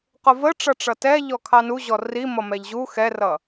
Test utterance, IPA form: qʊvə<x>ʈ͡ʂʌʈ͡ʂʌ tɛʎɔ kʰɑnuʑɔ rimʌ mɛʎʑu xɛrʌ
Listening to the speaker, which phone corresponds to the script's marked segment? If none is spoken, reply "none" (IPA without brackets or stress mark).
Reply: none